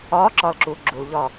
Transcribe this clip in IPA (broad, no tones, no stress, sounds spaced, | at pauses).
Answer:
ɒː ǁ ɒː l ǁ uː ɡ͡ǁ u l ʎ ɒː